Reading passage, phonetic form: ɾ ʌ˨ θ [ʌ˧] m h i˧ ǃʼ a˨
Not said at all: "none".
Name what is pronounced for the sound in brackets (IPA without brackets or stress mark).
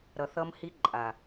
ʌ˧